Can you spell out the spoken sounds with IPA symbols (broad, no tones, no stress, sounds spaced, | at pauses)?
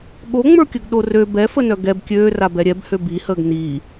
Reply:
ɠ o ŋ͡m ə˞ kʲ œ ɡ ɗ o r ø b ɛ f ə n œ ɡ ɛ b kʲ øː r a b ɛ ɾʲ ɛ b h ø b i h əː ɡ n iː